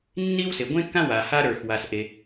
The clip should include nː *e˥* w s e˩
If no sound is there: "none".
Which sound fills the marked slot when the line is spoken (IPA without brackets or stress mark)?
i˥